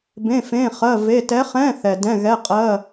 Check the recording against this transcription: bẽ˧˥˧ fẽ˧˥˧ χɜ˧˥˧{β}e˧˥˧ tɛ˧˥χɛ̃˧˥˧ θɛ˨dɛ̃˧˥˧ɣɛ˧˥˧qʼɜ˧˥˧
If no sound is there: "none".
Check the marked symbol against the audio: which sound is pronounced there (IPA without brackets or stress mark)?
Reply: v